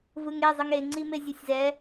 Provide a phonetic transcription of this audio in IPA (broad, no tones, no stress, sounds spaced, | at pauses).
v ɯ ŋ e zˤ ɯ ŋ e ŋ͡ǀ i m e zʲ o sʲ z ɛ